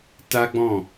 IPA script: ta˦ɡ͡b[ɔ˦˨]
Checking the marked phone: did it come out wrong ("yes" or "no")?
yes